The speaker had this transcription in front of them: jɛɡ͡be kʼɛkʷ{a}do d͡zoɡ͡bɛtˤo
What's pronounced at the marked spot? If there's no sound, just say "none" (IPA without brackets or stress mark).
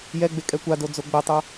a